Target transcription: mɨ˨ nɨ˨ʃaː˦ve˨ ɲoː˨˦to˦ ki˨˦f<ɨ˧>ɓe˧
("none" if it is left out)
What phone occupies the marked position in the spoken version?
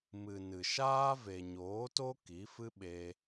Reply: ɨ˦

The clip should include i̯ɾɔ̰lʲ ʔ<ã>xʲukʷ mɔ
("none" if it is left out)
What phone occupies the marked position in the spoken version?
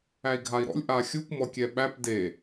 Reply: a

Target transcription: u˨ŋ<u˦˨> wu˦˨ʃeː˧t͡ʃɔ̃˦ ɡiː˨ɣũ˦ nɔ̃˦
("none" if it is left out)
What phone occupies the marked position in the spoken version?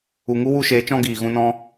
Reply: u˦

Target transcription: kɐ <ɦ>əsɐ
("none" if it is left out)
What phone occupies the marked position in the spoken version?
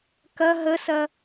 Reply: ɦ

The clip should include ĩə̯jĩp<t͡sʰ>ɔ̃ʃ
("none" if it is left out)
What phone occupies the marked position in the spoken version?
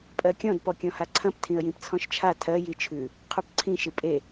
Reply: t͡sʰ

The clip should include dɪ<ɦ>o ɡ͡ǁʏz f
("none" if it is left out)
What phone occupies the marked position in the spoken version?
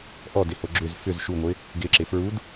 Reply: h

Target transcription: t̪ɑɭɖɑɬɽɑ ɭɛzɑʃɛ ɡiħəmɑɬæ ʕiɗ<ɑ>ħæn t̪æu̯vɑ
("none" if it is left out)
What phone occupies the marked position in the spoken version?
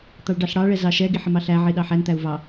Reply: ɑ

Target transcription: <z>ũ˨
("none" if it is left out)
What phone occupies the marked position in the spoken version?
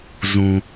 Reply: z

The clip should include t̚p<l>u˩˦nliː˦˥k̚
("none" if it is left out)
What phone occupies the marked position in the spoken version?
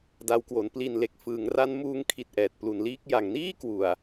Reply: l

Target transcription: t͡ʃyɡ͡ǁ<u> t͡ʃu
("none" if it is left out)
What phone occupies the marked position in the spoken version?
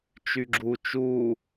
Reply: u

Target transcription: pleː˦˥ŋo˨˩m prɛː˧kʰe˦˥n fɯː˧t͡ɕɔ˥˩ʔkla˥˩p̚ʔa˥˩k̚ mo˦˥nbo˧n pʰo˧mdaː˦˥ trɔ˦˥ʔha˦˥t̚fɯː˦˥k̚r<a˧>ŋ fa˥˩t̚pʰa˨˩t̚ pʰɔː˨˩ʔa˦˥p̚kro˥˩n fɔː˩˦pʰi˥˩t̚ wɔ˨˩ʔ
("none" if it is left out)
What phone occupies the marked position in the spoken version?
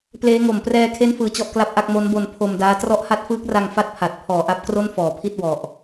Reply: a˧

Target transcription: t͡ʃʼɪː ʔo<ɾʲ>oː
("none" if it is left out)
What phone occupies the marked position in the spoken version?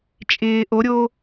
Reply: ɾʲ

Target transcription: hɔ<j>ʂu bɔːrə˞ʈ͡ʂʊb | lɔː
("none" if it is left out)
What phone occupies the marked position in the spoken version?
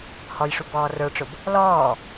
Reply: j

